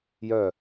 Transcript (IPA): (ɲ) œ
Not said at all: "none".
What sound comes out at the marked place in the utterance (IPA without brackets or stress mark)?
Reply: j